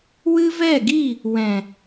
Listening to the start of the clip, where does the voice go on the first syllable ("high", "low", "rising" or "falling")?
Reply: high